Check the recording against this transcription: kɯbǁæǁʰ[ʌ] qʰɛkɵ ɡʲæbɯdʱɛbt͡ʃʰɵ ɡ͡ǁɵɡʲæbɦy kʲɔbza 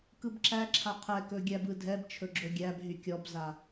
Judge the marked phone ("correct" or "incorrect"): incorrect